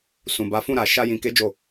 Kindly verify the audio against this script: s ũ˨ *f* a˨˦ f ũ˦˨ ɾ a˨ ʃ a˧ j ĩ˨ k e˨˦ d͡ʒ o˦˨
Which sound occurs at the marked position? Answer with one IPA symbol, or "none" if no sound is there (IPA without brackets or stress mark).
b